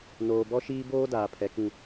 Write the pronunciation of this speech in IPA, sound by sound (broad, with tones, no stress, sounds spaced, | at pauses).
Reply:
n oː˨ b ɔ˦ ʃ iː˦ b oː˦ d aː˨ pʰ ɛ˨ k ĩ˦